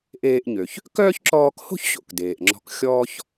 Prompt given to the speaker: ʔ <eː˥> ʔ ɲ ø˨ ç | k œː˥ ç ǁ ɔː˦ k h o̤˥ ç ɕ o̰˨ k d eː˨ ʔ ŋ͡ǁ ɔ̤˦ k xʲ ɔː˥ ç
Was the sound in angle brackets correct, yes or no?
no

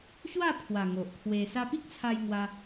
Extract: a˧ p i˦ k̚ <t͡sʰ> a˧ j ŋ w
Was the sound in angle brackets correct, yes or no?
yes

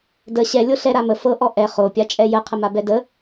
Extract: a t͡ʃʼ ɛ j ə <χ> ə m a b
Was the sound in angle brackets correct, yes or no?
no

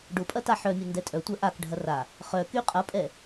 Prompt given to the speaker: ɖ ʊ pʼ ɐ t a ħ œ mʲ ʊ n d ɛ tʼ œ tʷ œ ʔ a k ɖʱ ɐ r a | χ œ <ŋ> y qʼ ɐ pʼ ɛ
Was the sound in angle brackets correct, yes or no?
no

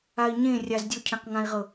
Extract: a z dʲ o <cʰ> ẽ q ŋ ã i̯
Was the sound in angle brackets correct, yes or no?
yes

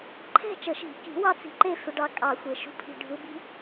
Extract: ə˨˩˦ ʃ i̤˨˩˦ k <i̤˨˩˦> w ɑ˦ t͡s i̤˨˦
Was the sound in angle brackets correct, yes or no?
yes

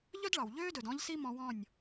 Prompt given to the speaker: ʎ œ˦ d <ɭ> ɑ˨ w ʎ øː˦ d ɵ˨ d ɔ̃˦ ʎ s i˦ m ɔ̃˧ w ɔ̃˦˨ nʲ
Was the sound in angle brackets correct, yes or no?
yes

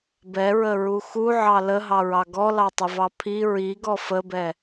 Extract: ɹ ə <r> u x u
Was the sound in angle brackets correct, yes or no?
no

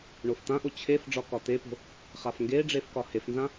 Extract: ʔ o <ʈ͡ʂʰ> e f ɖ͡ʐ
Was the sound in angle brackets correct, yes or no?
no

